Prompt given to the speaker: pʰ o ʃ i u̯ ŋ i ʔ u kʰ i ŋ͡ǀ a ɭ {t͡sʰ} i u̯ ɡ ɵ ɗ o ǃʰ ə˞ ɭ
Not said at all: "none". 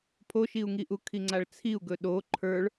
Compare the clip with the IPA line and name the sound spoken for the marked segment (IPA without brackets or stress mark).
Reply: t͡sʰ